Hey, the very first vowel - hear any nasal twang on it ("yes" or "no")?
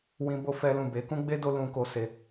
yes